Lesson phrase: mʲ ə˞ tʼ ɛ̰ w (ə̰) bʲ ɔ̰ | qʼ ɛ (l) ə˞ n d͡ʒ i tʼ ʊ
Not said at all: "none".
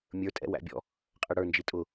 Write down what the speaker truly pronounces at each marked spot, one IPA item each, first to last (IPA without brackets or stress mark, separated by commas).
æ̰, ɽ